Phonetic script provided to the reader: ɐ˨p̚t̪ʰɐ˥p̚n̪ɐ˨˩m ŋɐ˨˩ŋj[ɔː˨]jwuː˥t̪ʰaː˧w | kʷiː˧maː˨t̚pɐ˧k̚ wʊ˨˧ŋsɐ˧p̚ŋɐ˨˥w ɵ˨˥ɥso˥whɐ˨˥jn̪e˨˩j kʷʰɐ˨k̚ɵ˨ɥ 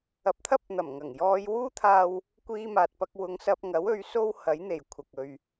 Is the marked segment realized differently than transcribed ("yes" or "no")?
yes